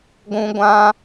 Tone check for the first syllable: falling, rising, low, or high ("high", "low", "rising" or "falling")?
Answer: high